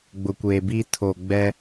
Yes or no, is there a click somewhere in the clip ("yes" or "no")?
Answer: no